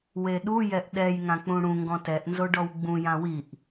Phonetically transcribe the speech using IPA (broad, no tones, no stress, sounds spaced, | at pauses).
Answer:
w e ɗ u j ɛ ʔ ɗ ɛ j ŋ ã k͡p ũ ɽ ũ ŋ ɡ ɔ̃ t ɛ ʔ n z o ɖ ɔ w ɡ͡b ũ j ã w i ʔ